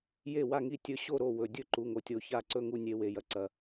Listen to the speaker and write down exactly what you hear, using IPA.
j e˥˨ w a˥˨ ŋ i˥˨ tʲ ɵ˥˨ ɕ o˥˨ ɾ o˥˨ w ɵ˧ dʲ ɵ˥˨ ǃ u˧ ŋ o˧ tʲ o˧ ç a˥˨ ǀ ɵ˥˨ ŋ u˥˨ nʲ e˧ w e˧ j ɐ˧ ǀ ɐ˧

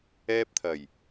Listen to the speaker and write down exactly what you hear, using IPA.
ɛː˧ p̚ t̪ʰ ɐ˨˩ j

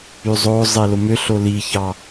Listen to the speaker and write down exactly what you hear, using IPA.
y zˤ o zˤ e l o m ø ɬ o l i ç ɑ

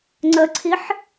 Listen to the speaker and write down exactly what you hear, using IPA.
ŋ͡ǀ ə ǀʰ i ħ

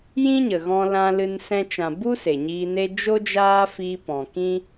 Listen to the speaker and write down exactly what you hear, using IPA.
j ĩ˦ ɲ ə˨ ɣ ɔ̃˧ l ã˧ l ɨ˧ n s ɛ̃˧ t͡ʃ ã˨ b u˦ s e˨ ɲ iː˧ n e˦ d͡ʒ o˦ d͡ʒ aː˦ f iː˧ p ɔ̃˨ k ĩ˦

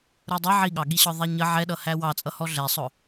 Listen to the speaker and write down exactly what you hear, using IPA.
ɾ u dˤ ə ʕ i ɠ ɑ ɠ i ɕ ɒ ðˤ æ ɲ ə ʕ ɛ ɗ ʌ h æ w ɑ t͡sʼ ʌ h ɔ ɮ ɛ sˤ ʊ

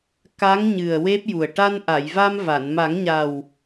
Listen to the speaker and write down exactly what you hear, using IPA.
k a˧˥ ŋ ɲ ɨ˨˩ ə̯ w e˦˥ p̚ j u˨˩ ə̯ ʈ a˧ n ʔ a˨˩˨ j v a˧ m v a˨˩˨ n m a˨˩˦ ŋ ɲ a˨˩ w

